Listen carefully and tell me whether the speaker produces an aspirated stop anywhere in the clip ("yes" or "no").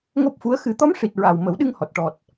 no